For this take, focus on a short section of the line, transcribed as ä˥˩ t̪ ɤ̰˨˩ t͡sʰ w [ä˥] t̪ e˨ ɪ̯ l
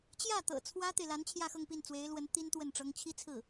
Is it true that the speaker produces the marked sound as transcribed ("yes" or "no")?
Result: yes